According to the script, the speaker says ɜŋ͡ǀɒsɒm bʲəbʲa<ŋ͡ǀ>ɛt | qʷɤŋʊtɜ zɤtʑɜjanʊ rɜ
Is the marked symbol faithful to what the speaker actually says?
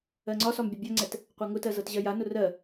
yes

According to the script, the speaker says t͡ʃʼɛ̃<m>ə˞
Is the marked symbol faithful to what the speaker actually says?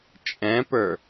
no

